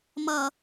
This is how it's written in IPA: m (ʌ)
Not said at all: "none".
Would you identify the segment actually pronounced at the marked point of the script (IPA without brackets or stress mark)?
ʌ